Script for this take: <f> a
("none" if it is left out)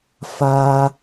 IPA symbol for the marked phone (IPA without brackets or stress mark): f